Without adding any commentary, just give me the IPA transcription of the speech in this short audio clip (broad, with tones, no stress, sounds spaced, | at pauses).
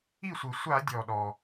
i˥˩ sʷ ɨ˩ sʷ a˧˩˧ dʲ ɔ˩ ɗ ɔ˩